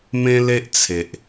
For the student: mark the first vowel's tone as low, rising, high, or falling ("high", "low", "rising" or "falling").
high